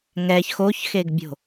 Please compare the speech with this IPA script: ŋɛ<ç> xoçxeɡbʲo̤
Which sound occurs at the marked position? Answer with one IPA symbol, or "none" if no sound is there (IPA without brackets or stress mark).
ç